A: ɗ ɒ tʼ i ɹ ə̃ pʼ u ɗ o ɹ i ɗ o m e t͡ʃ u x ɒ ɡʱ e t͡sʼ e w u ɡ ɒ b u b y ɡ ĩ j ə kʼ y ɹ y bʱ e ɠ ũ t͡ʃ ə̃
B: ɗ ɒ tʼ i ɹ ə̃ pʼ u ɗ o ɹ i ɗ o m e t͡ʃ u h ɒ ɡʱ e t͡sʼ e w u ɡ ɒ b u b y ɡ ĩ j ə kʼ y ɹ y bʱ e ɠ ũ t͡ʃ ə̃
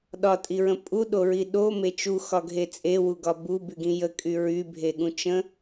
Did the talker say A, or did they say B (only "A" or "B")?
A